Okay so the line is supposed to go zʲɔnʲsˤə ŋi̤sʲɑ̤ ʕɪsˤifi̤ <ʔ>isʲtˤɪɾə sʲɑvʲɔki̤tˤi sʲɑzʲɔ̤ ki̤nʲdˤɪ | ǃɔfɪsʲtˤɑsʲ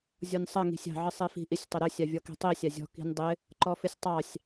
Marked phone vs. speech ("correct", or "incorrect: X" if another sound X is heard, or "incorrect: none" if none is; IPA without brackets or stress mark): correct